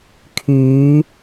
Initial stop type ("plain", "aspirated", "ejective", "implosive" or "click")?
aspirated